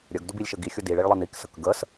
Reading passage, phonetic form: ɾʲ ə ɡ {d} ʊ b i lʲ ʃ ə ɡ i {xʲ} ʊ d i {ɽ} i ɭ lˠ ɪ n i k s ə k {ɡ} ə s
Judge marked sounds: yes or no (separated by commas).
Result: yes, yes, no, yes